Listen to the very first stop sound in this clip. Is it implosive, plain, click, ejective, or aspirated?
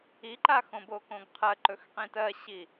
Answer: click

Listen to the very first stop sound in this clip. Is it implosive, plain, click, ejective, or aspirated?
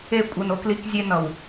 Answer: ejective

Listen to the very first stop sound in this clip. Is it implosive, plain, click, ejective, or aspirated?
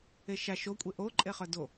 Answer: ejective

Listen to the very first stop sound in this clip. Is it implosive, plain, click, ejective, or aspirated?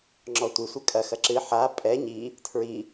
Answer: click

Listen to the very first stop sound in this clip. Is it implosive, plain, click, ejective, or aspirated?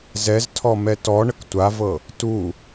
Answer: aspirated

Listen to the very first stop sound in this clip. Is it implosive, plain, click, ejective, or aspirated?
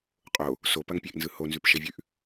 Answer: ejective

